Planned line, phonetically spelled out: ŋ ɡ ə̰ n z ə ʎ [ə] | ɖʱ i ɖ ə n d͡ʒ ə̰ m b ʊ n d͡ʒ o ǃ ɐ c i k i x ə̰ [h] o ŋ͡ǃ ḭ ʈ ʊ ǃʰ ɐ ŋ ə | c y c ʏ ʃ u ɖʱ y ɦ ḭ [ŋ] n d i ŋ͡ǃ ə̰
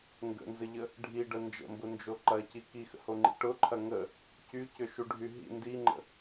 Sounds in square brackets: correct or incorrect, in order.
correct, correct, incorrect

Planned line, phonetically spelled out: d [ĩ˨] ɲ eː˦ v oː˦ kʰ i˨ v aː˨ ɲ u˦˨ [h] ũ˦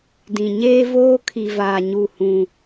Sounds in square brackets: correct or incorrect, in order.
correct, correct

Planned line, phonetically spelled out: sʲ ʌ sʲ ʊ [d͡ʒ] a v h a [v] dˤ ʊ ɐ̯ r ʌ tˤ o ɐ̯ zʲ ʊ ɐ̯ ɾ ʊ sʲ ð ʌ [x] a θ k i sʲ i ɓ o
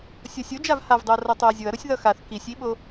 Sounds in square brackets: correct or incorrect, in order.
correct, correct, correct

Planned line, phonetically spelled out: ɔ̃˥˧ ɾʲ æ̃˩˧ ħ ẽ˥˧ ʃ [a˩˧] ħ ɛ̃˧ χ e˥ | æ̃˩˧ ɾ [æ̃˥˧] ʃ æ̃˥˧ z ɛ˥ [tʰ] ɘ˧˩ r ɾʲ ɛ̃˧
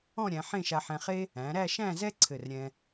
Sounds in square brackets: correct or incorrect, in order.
incorrect, incorrect, incorrect

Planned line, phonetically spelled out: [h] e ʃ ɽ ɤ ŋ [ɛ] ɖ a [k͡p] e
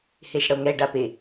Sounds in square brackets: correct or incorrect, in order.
correct, correct, incorrect

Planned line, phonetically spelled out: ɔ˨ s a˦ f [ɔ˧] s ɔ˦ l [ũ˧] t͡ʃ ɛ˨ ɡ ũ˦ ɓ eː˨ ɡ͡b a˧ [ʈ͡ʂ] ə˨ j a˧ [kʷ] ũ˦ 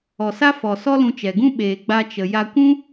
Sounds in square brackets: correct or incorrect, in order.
incorrect, correct, incorrect, correct

